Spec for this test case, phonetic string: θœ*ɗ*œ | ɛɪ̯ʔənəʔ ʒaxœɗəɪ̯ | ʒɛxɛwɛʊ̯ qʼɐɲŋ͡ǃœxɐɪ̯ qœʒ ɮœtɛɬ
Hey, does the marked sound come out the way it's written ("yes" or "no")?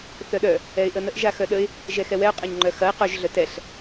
yes